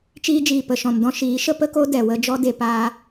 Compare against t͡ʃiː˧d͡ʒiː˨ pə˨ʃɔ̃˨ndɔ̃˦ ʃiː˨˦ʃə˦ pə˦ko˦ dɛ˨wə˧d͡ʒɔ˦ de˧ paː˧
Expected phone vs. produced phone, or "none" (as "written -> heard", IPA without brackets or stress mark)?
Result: none